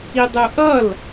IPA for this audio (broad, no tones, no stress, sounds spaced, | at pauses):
i dˤ u ʔ ʌ l